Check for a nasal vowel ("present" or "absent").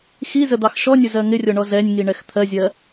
absent